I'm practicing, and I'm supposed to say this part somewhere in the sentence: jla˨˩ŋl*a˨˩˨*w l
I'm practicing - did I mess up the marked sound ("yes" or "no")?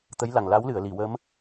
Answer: yes